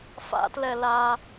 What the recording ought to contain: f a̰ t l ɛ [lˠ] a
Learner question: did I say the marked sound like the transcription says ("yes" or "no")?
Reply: no